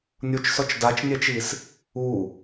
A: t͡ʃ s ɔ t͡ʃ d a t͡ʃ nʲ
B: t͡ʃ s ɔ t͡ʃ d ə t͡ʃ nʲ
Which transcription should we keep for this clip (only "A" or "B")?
A